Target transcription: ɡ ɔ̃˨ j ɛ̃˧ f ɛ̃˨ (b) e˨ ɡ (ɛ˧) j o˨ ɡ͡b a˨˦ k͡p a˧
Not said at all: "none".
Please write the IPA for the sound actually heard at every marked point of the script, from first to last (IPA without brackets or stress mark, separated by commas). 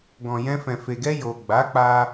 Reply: f, ɛ˧